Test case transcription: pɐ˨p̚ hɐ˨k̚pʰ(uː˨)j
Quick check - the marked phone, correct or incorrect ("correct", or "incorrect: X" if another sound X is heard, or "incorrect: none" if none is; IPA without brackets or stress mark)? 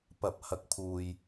correct